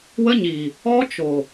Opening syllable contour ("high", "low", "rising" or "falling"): high